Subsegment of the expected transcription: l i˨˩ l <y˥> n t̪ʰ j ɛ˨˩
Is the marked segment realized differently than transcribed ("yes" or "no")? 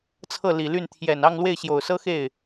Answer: yes